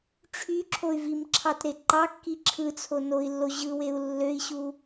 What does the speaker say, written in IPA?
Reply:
ʈ͡ʂʰ y ǁʰ o y̯ v i m ǁʰ ɑ t ɾ e ǃ ɑ kː i ǁʰ ɯ t͡sʰ o n o i̯ lː o ʑ ɯ w e u̯ lː ø i̯ ɕ u

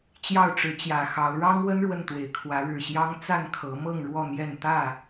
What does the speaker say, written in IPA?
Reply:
t͡ɕ j ɑ˥˨ ʊ̯ ʈ͡ʂ ɻ̩˨˦ t͡ɕ j ä˨˩ x ɑ˨˦ ʊ̯ ɻ ɑ˦ ŋ w ə˦ n ɻ w ə˥˨ n t̪ w e˨˩ ɪ̯ kʰ w ä˨˦ ɻ ɻ̩˨˩ ɕ j ɑ˦ ŋ t͡s a˥˨ n kʰ ɤ˨˦ m ɤ˥˨ ŋ ɻ w ɔ˥˨ n̪ j ɛ˥˨ n t̪ ä˥˨

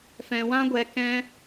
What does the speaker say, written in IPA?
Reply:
f ɛ̃˧ w ã˦ ɡʷ ɛ˧ k ɛ̃˦

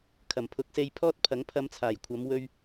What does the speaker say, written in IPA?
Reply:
kʰ ɐ˨˩ m pʰ ʊ˨˥ k̚ s e˧ j pʰ ɔː˥ t̚ pʰ ɐ˨˥ ŋ pʰ ɐ˧ m t͡sʰ aː˨˩ j kʷʰ ɐ˨˧ m w ɵ˧ ɥ

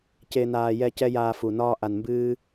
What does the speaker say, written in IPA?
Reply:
c e˨ n aː˨ j ɛ˧ c ɛ˦ j aː˧ f u˨ n ɒː˧ ʔ a˨ n m b ɨː˧

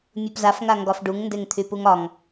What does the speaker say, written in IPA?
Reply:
mʲ u p z a f ŋ a ŋ ɡ ɒ f ɖ u ŋ n d e ŋ t̪ʰ y p u ŋ ɒ ŋ

